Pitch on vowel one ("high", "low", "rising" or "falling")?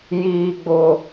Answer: high